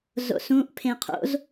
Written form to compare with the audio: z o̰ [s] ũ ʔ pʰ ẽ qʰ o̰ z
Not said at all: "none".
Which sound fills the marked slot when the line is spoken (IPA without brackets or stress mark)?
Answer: s